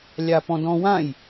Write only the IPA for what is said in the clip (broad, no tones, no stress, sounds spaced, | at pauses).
lʲ a p ɔ̃ d ɔ̃ w ã j